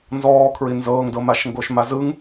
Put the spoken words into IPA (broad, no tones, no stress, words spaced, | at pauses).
nzɔːkʰɹi nzɤːŋdɤmaʃ ŋɡoʃmazɯŋ